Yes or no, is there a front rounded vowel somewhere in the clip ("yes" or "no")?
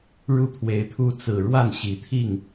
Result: no